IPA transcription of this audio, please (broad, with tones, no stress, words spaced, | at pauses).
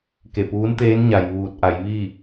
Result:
ke˧˩puː˧˥nt̪eː˧˥n ɲa˩jʋuː˧˩t̚ʔa˩˧jʋi˥˨